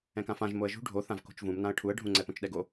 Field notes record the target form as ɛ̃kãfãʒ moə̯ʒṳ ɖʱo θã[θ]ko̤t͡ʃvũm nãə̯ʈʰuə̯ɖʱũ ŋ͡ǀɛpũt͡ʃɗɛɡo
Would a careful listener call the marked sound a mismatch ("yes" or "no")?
yes